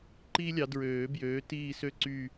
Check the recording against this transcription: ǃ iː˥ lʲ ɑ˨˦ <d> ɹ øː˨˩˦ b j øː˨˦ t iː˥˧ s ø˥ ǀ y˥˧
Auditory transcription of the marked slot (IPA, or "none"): d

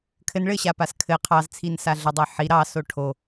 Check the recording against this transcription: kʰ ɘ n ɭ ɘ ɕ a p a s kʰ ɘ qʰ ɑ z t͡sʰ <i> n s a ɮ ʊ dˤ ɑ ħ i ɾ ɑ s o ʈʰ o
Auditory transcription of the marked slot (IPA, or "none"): i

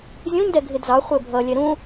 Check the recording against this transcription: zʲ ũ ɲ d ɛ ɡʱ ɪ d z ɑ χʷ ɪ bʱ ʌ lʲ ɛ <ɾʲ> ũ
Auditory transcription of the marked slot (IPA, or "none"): ɾ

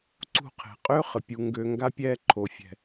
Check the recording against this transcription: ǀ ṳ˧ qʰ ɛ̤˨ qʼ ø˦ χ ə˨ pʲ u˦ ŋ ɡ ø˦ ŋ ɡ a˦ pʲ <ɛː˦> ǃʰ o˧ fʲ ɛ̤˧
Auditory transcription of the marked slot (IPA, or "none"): ɛː˦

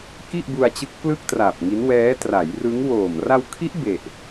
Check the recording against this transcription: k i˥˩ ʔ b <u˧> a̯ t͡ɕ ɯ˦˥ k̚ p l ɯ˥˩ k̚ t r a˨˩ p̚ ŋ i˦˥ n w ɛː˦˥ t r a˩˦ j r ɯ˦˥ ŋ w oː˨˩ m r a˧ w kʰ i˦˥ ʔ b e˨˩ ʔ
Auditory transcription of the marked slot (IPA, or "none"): u˧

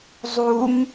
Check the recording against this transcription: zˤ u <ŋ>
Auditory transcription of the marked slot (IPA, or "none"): ŋ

